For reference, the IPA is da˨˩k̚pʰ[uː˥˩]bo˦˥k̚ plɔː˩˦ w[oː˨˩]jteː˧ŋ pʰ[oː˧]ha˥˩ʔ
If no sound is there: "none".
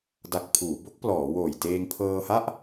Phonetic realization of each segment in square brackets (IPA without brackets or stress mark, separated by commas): uː˩˦, oː˨˩, ɤː˧